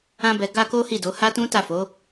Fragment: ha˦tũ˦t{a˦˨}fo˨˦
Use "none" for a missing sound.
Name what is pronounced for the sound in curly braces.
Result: a˦˨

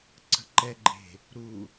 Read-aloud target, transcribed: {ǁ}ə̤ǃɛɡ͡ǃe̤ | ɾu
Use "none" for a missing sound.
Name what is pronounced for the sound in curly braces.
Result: ǀ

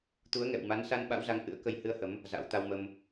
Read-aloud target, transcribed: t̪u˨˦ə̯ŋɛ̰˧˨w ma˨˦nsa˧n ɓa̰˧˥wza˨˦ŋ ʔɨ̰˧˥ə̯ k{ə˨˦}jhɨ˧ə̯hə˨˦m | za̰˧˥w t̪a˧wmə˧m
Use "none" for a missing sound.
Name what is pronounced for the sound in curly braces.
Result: ə˧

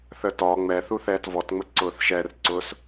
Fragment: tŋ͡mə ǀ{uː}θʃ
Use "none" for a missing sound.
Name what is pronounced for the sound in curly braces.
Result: ʊː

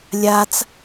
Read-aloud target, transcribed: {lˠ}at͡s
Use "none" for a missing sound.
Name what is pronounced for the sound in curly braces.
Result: lʲ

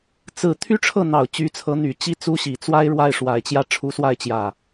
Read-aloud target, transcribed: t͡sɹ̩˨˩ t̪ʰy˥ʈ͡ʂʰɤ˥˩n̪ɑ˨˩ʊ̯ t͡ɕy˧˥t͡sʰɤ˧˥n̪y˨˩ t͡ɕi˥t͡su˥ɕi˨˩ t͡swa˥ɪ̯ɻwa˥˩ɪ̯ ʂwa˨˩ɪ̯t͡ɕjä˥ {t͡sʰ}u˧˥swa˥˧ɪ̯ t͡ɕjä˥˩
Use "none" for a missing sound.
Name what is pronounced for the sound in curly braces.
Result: ʈ͡ʂʰ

